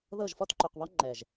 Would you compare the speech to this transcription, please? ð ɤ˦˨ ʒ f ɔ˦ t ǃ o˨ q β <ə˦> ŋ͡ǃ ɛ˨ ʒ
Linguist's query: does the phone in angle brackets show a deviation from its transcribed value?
yes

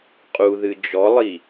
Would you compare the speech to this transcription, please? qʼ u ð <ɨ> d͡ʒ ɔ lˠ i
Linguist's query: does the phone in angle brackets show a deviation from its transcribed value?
no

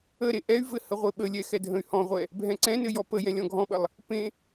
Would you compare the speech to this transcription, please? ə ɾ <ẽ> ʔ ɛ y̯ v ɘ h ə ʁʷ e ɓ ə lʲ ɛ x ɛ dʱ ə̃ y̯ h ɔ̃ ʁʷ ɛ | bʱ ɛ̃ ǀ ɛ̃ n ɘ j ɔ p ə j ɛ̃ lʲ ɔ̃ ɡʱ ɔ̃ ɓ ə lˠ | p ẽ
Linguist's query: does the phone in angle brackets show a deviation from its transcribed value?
yes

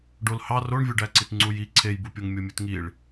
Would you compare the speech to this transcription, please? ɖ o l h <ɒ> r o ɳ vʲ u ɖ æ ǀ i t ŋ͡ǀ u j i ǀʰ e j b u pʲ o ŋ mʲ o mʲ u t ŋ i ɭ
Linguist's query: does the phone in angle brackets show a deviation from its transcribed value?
yes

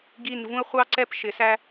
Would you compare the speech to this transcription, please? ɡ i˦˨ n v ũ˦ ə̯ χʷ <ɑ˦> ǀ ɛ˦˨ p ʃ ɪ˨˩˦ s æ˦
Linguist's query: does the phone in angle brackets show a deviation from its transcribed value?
no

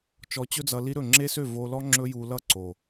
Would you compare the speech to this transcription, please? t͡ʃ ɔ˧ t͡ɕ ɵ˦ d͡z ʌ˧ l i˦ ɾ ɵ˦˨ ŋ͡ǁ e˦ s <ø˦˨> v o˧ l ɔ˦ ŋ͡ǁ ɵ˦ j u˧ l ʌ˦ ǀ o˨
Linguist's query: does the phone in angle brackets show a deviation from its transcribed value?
no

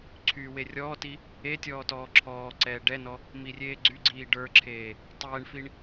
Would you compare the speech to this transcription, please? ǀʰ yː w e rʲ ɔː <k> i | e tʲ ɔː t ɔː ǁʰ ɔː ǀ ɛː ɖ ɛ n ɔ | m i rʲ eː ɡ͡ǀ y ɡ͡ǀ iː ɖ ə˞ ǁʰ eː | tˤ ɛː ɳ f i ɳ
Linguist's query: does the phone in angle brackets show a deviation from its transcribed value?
yes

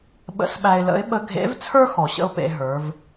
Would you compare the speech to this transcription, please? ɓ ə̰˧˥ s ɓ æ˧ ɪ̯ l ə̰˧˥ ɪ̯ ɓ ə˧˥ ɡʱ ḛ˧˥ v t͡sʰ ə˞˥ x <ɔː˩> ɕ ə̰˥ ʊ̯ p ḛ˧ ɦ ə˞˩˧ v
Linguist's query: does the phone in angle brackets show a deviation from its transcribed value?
yes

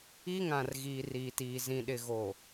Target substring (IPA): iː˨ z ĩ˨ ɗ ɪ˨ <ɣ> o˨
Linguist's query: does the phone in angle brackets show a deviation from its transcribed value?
no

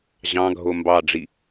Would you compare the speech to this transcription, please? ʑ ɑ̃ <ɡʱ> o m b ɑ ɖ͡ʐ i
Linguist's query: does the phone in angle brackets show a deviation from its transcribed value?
no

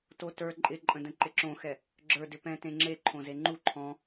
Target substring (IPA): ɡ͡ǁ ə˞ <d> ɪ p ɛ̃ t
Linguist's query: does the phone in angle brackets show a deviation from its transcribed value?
no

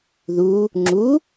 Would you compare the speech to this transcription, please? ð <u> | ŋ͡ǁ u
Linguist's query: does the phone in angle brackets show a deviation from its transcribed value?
no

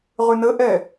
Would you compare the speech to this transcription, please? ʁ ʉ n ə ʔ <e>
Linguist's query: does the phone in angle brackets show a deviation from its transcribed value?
yes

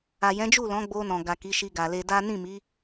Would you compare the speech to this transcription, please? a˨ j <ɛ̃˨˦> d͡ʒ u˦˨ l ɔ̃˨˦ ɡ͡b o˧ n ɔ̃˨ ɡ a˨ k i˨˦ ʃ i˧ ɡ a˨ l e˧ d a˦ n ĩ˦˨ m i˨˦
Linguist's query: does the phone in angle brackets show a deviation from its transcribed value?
no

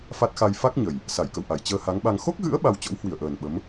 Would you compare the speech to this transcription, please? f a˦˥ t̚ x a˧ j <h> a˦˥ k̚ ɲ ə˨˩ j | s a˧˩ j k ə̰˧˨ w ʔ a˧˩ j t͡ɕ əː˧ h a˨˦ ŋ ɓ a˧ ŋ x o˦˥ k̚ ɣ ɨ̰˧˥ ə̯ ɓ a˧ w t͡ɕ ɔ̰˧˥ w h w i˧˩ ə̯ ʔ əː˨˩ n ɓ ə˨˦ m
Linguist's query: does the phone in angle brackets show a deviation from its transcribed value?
yes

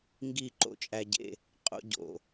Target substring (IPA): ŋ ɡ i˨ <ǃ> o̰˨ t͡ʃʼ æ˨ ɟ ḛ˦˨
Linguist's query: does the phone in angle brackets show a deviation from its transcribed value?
no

